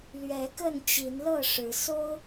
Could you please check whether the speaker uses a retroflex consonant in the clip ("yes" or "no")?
yes